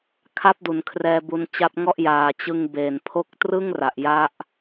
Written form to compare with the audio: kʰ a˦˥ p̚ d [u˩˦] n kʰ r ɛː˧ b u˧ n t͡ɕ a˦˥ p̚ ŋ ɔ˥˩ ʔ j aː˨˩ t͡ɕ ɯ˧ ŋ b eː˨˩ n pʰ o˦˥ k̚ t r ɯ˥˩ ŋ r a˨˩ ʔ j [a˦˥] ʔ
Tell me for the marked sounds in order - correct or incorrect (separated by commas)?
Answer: correct, correct